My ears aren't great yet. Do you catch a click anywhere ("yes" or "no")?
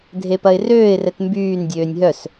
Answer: no